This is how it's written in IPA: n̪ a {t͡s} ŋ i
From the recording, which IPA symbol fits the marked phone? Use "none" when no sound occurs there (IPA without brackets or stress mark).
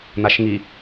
ʃ